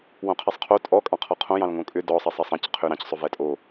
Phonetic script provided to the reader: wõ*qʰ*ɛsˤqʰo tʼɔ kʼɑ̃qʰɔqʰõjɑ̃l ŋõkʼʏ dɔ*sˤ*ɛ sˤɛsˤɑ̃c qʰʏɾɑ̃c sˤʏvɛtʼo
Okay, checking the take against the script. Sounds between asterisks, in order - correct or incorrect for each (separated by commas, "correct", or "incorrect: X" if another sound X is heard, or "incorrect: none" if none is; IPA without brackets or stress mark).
correct, correct